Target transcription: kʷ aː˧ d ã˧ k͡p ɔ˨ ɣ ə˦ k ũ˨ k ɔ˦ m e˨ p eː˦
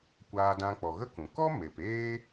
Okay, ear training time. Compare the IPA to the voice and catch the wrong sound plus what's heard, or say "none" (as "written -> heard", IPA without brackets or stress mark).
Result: none